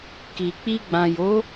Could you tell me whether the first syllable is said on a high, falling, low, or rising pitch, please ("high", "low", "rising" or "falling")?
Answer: low